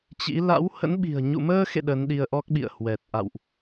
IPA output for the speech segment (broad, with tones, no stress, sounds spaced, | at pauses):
t͡ɕ ḭ˧˥ l a̰˧˥ w h ə̰˧˥ n ɓ i̤˨˩ ə̯ ɲ ṵ˧˨ m əː˧ x ḛ˧˨ ɗ ə˨˦ n ɗ i˧ ə̯ ʔ ɔ˦˥ k̚ ɓ ḭ˧˨ ə̯ h w ɛ˨˩ t̚ ʔ a̰˧˨ w ʔ